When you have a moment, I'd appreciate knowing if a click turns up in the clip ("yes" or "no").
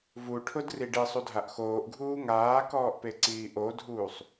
yes